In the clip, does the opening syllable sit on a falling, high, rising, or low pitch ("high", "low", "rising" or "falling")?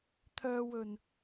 low